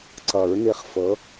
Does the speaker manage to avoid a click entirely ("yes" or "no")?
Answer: no